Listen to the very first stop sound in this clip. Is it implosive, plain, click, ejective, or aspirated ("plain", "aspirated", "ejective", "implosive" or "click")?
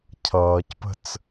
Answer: aspirated